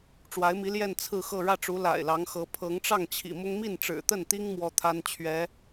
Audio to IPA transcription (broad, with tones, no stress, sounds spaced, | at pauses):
ʈ͡ʂ w a˧˥ ɪ̯ m i˧˥ l j ɛ˥˧ n t͡sʰ ɹ̩˥˧ x ɤ˥˧ ɻ ä˥˩ ʈ͡ʂ u˧˥ l a̰˨˩ ɪ̯ l ɑ˧˥ ŋ x ɤ˧˥ pʰ ɤ˧˥ ŋ ʈ͡ʂ ɑ˥˩ ŋ t͡ɕʰ ḭ˨˩ m ʊ˥ ŋ m i˥˩ n ʈ͡ʂ ɻ̩˨˩ t̪ ə˥˩ n t̪ i˥ ŋ m w ɔ˥ t̪ʰ a˥ n t͡ɕʰ ɥ ɛ˧˥